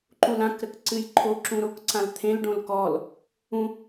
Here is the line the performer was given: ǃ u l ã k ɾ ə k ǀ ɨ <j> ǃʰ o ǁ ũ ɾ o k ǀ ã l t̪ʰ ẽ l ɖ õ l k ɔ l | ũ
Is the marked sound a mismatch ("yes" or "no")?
no